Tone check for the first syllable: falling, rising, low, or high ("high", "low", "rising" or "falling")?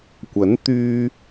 rising